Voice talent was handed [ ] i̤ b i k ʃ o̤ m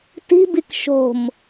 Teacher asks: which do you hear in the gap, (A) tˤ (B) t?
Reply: B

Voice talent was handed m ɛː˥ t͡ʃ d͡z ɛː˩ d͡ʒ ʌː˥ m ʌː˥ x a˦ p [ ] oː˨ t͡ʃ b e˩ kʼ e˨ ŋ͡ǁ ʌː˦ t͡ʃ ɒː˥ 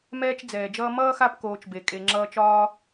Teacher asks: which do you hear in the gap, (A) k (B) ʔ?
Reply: A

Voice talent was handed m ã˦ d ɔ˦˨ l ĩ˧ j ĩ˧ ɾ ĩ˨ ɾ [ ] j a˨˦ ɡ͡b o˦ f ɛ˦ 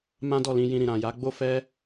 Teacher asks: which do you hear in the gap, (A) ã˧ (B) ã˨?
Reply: B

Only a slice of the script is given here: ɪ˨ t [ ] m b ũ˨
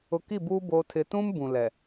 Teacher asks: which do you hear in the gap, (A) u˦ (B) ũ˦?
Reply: B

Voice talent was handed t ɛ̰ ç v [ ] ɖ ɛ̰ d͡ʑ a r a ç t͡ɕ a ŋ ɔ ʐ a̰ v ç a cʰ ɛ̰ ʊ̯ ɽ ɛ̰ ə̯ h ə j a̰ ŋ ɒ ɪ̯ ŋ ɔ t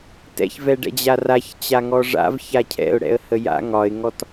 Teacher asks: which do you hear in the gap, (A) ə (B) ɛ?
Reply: B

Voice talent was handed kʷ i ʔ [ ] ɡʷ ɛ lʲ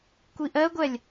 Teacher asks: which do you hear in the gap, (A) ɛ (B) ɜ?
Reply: B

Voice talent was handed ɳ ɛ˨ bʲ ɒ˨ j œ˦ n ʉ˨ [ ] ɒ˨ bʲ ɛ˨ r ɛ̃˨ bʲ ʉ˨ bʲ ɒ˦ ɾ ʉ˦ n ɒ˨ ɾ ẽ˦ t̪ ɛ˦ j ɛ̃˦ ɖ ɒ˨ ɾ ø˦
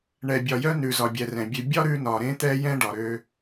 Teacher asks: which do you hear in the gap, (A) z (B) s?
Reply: A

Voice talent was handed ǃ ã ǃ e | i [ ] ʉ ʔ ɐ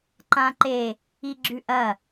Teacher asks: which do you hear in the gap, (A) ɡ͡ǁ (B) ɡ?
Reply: A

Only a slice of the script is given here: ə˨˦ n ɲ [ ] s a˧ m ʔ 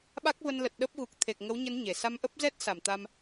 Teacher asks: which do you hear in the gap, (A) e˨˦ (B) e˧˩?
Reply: B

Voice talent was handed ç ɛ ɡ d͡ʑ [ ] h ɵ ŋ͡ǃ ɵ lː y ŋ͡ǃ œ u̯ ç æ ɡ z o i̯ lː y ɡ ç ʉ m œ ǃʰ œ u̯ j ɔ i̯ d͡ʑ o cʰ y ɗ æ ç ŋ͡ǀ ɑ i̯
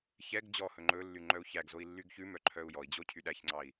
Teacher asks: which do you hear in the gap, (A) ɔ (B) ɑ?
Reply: A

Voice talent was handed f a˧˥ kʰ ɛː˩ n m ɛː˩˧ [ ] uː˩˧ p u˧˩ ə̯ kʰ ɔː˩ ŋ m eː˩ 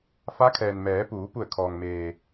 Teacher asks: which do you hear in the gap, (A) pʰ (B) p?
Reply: B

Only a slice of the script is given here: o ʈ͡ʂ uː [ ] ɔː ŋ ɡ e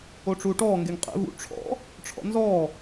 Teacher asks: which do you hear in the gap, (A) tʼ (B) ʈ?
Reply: B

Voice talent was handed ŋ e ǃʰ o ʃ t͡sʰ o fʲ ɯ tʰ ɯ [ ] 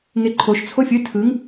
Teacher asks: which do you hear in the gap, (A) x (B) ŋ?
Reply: B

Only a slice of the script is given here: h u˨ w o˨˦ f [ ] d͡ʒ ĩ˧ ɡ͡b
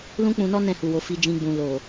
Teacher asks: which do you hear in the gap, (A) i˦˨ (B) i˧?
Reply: B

